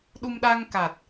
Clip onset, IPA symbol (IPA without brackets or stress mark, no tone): ɗ